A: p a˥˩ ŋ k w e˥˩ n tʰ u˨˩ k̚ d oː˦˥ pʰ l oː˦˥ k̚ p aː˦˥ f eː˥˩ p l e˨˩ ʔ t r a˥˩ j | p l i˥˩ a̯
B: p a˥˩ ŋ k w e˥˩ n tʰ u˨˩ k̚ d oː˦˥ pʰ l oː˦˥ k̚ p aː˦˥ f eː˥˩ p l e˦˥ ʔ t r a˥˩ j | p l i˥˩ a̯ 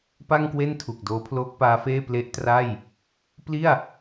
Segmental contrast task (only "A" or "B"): B